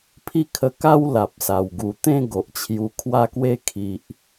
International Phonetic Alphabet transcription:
pʰi˥˧kʰə˧ka˦w la˨p̚sa˨˩w ɡu˨˩t̪ẽ˥˧ ɡo˨ʔt͡ɕʰju˧kʰwa˥˧kwe˥˧ kʰi˨ʔ

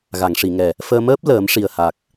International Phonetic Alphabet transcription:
ɣa˨˩˨ŋʂi˨˩˨ŋɛ˨˩ | fəː˧məː˦˥p̚ ləː˨˩˦m ʂi˨˩ə̯ha˨˩k̚

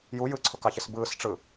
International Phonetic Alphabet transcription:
ju jɯǀʰʊkɑçɪs bɯːsʈ͡ʂɯ

